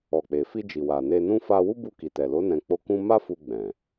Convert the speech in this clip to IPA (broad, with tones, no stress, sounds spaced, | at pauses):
ɔ˨ k͡p e˨ f i˧ d͡ʒ i˨ w a˨ n e˧ n ũ˦ f a˧ w u˦ b u˧ k i˨ t ɛ˨ l o˨˦ n ɛ̃˧ k͡p o˦ k ũ˦ m a˦ f u˧ ɡ͡b ɛ̃˨